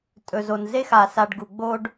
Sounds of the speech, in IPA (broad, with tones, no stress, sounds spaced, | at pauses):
tʼ ɵ˨ z o˨ n z e˦ x a˨ s a˨ ɖ ɡ u˨ ɡ͡b o˦ ɖ